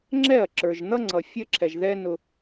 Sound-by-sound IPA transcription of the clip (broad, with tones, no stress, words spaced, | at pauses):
ŋ͡ǁɛ˦˨ɐ̯ǁə˞˨ʒn̪ʌ˦ŋ͡ǀʌ˨ fʲə˦ǁʰɛ˨ʒðɛ˦ nʊ˦